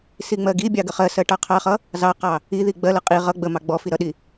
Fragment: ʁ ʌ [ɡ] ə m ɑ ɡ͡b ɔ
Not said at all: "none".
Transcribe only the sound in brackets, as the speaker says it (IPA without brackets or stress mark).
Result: ɡ͡b